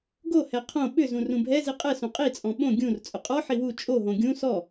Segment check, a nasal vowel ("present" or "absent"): present